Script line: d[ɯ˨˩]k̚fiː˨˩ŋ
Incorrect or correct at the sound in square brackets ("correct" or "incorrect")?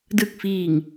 correct